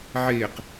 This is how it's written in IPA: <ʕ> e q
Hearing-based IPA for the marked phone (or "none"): ʕ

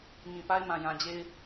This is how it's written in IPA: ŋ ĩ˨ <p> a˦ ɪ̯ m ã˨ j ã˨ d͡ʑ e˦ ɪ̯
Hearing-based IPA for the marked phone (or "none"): p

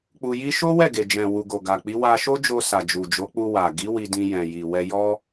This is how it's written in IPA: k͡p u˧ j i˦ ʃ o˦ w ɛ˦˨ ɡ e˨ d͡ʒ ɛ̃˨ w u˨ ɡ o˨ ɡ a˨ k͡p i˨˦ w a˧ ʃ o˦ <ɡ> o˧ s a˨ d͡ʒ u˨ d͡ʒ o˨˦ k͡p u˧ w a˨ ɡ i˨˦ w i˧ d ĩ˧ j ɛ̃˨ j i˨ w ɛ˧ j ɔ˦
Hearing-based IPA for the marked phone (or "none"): d͡ʒ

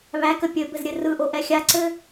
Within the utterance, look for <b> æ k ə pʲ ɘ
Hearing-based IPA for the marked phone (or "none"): β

